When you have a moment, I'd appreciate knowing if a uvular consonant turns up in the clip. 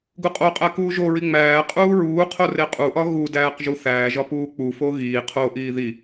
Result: yes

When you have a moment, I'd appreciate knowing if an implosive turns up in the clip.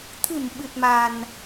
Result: yes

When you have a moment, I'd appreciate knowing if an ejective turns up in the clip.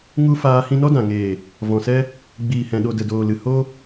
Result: no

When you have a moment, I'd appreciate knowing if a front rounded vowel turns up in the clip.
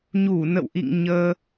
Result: no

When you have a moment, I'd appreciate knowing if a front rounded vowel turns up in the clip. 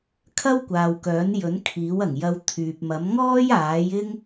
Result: yes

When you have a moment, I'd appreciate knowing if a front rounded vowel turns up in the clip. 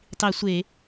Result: no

